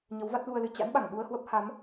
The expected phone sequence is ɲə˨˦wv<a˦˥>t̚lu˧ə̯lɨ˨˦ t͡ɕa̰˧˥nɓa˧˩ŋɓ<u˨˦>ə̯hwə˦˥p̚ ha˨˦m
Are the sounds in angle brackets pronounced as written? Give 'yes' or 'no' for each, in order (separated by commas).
yes, no